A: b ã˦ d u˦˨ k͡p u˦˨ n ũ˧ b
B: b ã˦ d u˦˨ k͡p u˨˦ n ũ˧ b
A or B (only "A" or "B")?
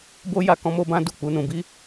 B